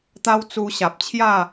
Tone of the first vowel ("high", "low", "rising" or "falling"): high